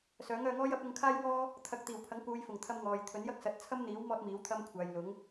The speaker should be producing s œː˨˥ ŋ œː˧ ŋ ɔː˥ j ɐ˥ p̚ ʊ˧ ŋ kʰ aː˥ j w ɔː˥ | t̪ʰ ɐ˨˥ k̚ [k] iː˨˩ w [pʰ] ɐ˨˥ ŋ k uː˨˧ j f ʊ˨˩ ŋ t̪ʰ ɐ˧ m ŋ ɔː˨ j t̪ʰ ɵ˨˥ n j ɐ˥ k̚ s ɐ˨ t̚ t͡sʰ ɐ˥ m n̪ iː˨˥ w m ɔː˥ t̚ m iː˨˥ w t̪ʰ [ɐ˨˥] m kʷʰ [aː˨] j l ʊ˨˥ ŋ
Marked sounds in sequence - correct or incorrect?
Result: incorrect, correct, incorrect, correct

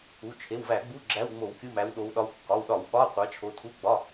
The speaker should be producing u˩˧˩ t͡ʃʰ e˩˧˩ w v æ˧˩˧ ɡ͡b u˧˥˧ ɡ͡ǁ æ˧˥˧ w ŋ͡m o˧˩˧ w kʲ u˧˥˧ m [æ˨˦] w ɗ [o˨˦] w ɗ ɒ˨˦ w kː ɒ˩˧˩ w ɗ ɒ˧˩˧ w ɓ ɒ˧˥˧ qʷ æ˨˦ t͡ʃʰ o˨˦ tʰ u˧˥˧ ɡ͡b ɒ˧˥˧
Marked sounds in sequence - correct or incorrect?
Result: correct, correct

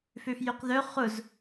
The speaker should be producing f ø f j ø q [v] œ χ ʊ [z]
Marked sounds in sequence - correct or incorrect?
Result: incorrect, correct

